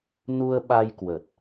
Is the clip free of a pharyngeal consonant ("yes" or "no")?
yes